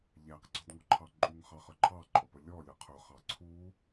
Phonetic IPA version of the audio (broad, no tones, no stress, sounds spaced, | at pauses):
ʎ æ q ɡ͡ǀ ɔ d ŋ ɔ ǃʰ ɑ ǃʼ u ŋ χ ɑ χ ə˞ ǃʰ ɑ ǃʼ ɔ p ə lʲ ɔ lʲ ʌ qʰ ʊ χ ɑ ǀʰ u